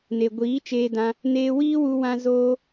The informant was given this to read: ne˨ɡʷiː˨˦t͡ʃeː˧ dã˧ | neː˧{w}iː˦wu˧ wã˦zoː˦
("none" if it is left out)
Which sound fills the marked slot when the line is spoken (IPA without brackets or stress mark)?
w